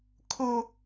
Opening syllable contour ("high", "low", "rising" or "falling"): high